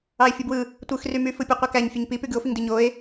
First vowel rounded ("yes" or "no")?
no